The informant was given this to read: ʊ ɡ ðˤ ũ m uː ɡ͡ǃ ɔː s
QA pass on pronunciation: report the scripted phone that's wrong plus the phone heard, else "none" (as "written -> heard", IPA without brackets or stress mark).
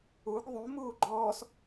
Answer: ʊ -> u